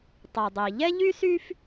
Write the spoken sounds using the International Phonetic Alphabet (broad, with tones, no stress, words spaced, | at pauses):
tˤy˩dˤi˩ʎɛ˥ ʎy˥sy˥f